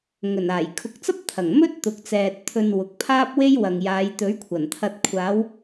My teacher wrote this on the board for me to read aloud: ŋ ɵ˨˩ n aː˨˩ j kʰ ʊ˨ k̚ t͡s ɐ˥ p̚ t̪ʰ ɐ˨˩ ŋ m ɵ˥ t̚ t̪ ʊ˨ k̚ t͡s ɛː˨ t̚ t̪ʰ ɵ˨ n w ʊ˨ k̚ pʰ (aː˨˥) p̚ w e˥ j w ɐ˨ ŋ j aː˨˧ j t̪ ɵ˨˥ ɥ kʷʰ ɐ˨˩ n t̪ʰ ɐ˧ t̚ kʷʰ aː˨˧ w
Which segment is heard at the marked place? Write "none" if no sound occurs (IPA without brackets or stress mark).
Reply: aː˥